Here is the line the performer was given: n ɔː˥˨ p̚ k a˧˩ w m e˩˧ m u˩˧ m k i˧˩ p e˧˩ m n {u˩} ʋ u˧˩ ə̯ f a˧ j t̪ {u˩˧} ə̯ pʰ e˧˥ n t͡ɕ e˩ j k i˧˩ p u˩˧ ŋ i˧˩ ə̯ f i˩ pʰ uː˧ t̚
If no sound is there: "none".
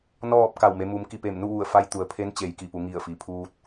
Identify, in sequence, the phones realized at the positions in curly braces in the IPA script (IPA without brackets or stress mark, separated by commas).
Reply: u˥˨, u˩˧